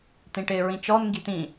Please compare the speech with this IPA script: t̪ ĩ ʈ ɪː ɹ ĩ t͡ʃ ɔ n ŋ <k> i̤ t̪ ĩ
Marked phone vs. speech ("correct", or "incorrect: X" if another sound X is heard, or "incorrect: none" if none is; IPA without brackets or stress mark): incorrect: ɡ